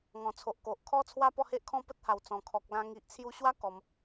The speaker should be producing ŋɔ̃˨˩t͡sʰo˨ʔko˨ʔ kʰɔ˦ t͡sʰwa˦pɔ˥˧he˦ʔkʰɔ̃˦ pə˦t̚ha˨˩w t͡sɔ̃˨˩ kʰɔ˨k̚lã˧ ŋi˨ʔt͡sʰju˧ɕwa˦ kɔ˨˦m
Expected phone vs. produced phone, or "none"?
none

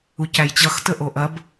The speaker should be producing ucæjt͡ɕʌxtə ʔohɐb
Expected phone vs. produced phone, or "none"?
h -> ʔ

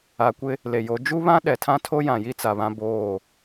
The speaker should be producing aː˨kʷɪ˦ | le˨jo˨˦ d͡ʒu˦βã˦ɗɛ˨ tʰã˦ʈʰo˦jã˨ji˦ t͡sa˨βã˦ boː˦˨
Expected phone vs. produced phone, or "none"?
ʈʰ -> tʰ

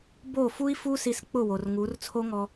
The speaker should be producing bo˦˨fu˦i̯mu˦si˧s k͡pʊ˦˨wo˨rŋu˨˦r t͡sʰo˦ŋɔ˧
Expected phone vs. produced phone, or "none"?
m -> f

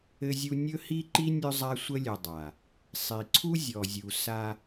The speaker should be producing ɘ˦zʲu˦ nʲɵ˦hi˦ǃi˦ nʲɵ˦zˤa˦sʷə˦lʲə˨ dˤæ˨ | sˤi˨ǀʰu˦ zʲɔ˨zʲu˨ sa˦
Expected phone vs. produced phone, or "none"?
æ˨ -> a˨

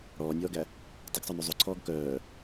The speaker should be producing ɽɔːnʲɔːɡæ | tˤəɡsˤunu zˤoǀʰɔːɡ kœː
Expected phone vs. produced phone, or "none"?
none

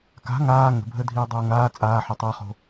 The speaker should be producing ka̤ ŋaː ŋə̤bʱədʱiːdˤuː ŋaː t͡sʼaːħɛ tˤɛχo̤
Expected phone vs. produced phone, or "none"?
none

